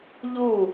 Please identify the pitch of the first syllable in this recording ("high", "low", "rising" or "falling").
falling